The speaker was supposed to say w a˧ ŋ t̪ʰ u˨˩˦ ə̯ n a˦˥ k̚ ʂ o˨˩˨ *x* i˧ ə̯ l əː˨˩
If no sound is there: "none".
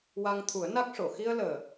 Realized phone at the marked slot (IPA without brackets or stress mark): x